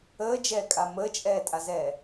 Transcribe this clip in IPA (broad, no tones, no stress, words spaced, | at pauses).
əːd͡ʒɛːkʼa məːt͡ʃʼɛːtʼazɛː